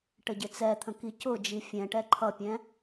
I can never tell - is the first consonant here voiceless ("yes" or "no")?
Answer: yes